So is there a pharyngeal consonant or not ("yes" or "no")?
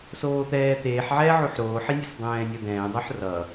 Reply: yes